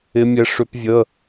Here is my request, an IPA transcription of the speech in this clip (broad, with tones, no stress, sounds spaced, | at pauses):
ɪ˦˥ mʲ ɛ˦˥ ʂ ʏ˦˥ p vʲ ə˧˥˧